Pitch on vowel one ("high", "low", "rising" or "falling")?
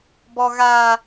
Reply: high